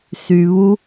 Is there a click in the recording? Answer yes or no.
no